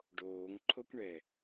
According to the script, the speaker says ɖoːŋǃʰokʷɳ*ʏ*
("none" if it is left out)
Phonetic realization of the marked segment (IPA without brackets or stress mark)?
ɛ